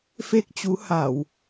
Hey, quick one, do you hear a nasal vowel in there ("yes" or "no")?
no